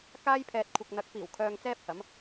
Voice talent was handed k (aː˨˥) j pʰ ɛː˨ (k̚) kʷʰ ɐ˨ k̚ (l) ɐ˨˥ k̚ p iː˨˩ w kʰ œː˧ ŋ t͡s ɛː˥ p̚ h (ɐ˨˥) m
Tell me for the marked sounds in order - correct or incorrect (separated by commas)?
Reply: incorrect, incorrect, incorrect, correct